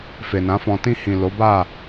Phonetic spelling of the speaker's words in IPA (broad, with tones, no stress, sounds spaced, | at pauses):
f e˨ n ã˨˦ f ɔ̃˧ t ĩ˧ h ĩ˨ l o˨˦ b a˦˨